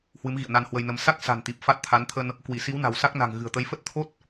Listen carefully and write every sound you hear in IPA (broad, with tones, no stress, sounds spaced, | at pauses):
h w ɨ˨˦ m ɣ ḭ˧˨ ə̯ n a˧ n h w ə˧ j n ə˨˦ m s a˦˥ k̚ s a̤˨˩ n t̪ i˨˩ p̚ f a˦˥ t̚ t̪ʰ a˨˦ n t̪ʰ ə˧ n | k w i˧˩ s i˨˦ w n a̤˨˩ w s a˦˥ k̚ n a̤˨˩ ŋ ɣ ɨ̤˨˩ ə̯ t̪ ə˨˦ j f ə˦˥ t̚ t̪ʰ o˦˥ t̚